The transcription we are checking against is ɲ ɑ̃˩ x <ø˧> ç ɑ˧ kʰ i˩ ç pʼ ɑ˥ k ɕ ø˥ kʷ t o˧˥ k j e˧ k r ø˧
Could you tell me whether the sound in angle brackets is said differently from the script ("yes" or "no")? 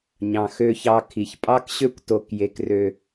no